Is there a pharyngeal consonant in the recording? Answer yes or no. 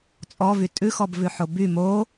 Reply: yes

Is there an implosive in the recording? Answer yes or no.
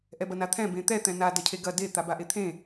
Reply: no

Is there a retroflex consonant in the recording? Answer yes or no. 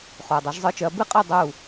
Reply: no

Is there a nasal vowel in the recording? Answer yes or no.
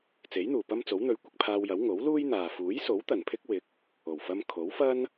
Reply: no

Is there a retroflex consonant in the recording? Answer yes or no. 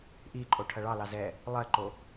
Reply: yes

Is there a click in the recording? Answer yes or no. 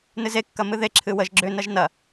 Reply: yes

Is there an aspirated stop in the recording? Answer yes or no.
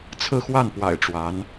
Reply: yes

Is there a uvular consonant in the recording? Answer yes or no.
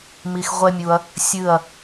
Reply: yes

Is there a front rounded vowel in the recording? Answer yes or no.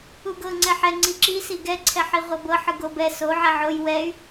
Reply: yes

